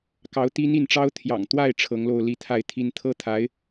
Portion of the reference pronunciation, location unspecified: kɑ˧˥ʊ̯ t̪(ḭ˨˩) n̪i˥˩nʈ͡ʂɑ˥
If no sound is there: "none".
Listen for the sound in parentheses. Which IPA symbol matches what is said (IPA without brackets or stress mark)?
i˥